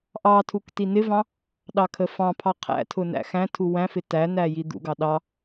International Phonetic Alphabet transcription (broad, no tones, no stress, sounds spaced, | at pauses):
ʔ ɑ tʰ u k t i n ɪ v ɑ̃ | ɗ ɑ kʰ ə f ɑ̃ pʰ ɑ qʰ æ̰ tʰ ʊ n æ̰ x æ̃ tʰ u w æ̃ f ɪ t æ n æ j i d̪ ṵ ɡ ɑ ɗ ɑ